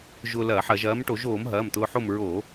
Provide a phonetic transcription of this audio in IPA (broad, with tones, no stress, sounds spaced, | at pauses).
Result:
ʒ ʊː˧ l ɐː˧˩˧ ħ ɐ˧˩˧ ʒ ɐː˨˥ m ʈ o˧˩˧ ʒ oː˧˩˧ m ɦ ɐː˩˧˩ m t̪ ʊː˧ ħ o˥˨ m ɹ oː˧˩˧